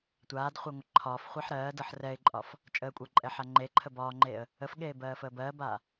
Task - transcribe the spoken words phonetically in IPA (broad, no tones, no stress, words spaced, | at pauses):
tʷaːdχʷeŋʷə ǃʰɒːfχʷɛħ ɾɜːdɤħ rɛɪ̯ǃʼɒf | t͡ʃʼəːkʷʼəːǃʼɛħa ŋ͡ǃeǃʰə bɒːŋ͡ǃeːə̯ | əfɠeːbɜːfəː bɜːbaː